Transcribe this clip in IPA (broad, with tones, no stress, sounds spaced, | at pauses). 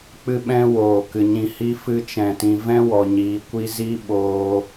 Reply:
k͡p ɨ˦ ɓ ɛ̃˦ w oː˨ k ɨ˨ ɲ ĩ˧ h i˦ f ɨ˧ t͡ʃ ɛ̃˨ t ĩ˨ v ɛ̃˦ w ɔ˨ ɲ iː˨ kʷ i˧ z i˦ ɓ oː˧